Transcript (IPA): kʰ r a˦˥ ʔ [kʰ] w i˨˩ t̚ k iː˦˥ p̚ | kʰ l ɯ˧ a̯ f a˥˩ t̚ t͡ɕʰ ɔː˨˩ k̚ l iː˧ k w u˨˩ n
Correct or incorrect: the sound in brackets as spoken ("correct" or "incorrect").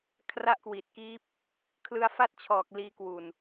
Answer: incorrect